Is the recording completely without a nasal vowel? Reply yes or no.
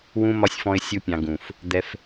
no